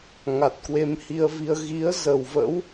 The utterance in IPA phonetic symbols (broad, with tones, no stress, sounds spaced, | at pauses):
ŋ a˨˩ t̚ k w e˧ m h i˧ ə̯ v i˧ ə̯ ɣ i˨˦ ə̯ z ə˨˩ w v ə̰˧˥ w